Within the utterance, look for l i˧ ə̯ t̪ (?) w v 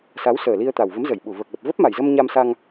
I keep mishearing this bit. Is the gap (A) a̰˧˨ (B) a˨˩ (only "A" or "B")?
B